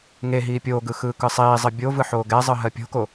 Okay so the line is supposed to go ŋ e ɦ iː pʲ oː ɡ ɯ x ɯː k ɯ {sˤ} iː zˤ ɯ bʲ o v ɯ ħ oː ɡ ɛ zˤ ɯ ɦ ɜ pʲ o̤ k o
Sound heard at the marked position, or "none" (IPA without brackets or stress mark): sˤ